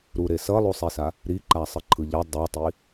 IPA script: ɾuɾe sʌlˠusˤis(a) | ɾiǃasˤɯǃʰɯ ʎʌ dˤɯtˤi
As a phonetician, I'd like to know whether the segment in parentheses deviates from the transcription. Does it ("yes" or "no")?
no